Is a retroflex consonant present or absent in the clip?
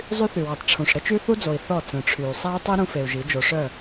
present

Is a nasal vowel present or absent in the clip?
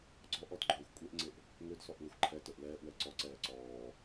absent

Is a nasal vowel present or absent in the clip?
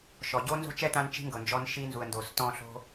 present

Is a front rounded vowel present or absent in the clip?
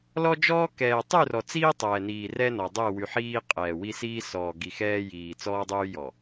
present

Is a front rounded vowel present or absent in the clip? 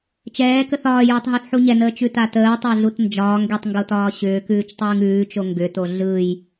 present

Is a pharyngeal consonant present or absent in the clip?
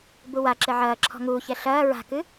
present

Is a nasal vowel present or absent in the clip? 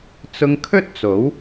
absent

